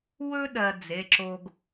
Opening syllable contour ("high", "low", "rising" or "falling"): high